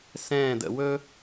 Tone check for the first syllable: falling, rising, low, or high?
falling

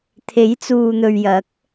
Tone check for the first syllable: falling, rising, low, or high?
rising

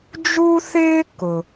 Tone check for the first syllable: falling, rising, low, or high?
high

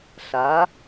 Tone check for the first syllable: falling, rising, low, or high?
rising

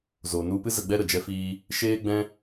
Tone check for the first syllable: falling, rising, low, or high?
low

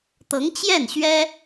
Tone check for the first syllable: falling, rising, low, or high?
rising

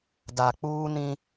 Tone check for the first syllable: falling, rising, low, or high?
low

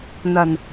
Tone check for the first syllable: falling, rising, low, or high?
low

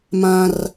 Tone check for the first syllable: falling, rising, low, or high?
high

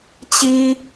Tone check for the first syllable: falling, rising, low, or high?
high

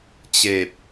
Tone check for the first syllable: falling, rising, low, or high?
low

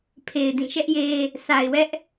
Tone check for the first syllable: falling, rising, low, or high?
low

